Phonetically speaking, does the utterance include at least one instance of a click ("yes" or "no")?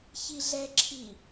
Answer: yes